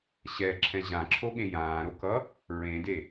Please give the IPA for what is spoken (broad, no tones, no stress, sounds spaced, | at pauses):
ɕ ɛ ǁʰ ɛ̃ ʑ ã ǁʰ o ɠ ẽ j ãː ɾ o k ʌ | ɹ ẽ d e